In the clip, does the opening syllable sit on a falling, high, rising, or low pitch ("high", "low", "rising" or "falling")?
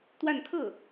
falling